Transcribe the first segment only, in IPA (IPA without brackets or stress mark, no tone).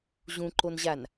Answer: ʑ